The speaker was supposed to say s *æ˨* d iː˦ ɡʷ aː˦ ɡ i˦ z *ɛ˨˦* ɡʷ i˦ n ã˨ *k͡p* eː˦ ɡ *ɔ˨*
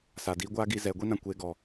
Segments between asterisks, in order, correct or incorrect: incorrect, correct, incorrect, correct

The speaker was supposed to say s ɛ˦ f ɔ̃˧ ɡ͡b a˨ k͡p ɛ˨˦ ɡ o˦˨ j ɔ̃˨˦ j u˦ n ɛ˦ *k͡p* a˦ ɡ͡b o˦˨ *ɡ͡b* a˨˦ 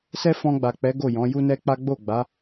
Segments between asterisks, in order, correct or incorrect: correct, correct

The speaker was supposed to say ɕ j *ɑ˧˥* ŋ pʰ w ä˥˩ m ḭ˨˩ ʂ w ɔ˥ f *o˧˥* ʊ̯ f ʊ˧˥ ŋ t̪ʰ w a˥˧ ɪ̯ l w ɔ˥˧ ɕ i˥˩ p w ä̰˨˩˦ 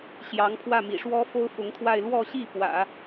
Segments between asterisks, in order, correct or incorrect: correct, incorrect

